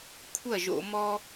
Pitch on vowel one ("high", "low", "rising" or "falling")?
falling